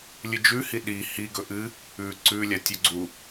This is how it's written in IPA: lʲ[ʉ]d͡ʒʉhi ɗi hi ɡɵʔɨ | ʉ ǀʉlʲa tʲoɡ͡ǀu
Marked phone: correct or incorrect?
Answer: incorrect: ɨ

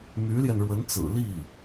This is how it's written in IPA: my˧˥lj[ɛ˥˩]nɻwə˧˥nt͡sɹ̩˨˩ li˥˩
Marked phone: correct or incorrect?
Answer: incorrect: ɛ˧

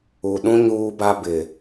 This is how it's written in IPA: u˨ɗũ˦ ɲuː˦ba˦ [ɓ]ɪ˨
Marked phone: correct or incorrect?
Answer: incorrect: b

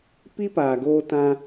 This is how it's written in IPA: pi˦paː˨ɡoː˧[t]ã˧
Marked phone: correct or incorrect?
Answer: correct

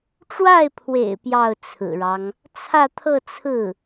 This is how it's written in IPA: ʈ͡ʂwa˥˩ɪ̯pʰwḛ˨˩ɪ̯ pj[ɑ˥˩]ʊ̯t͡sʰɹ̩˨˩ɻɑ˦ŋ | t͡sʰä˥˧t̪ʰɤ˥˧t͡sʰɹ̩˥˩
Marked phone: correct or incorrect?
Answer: correct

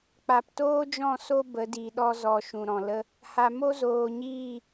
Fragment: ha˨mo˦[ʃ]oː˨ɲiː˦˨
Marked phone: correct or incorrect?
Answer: incorrect: z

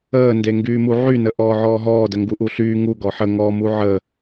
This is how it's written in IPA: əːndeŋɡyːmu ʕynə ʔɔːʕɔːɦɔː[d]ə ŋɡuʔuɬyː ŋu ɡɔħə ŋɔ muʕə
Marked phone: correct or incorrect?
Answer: correct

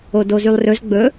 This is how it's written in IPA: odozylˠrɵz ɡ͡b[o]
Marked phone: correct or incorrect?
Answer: incorrect: ɵ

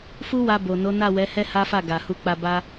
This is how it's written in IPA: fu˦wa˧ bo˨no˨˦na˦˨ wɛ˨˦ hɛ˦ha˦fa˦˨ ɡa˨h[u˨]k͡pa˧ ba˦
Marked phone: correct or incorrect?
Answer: incorrect: u˧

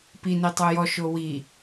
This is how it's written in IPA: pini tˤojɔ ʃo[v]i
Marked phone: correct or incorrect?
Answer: incorrect: w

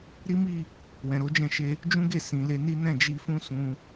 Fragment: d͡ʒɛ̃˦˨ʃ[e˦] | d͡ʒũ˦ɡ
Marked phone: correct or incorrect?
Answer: incorrect: e˧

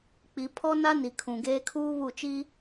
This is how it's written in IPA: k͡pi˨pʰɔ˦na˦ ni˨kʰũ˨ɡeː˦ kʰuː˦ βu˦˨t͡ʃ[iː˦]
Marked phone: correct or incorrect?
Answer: incorrect: i˦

